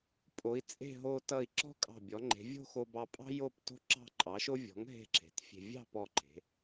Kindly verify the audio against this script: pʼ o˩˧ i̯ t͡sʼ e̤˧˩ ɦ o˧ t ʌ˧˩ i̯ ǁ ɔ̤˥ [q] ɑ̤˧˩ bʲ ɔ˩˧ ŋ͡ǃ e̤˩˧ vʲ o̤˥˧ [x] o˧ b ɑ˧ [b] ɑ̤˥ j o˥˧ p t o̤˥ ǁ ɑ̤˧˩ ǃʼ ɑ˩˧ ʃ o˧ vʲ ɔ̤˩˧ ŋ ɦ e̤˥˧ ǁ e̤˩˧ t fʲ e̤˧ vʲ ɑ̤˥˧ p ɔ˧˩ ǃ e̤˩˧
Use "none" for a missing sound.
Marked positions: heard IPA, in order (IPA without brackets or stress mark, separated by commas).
kʼ, x, pʼ